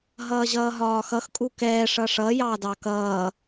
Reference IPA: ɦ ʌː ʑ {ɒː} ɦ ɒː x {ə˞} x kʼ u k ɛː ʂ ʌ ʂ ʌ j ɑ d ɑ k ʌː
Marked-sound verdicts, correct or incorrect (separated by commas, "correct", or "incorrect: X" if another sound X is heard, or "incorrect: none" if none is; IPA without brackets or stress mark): incorrect: ʌː, incorrect: ʌ